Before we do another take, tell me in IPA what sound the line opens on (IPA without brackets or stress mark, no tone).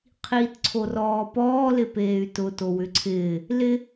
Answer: qʰ